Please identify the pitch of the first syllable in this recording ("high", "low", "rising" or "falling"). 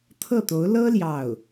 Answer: falling